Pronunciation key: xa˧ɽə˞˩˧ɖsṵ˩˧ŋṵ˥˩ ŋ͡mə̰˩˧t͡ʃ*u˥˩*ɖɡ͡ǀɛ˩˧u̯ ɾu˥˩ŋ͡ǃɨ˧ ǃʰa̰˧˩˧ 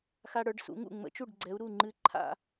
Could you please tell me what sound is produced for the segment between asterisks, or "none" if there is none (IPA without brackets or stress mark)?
u˥˩